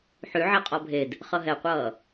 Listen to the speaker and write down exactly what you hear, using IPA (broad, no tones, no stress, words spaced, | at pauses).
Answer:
ħyʕe qʼɔbʱed | χʌɦɛqʷʌː